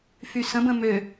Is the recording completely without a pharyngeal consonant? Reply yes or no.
yes